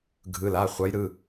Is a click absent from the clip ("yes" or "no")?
yes